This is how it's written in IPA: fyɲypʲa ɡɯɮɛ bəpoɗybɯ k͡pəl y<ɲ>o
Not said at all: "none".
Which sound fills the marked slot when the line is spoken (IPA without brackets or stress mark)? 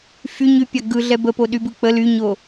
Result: ɲ